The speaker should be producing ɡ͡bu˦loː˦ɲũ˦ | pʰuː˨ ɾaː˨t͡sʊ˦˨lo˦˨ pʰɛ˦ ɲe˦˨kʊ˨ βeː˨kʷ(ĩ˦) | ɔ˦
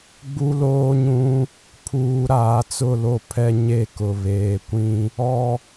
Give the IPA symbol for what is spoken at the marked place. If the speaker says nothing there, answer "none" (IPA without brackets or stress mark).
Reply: ĩ˦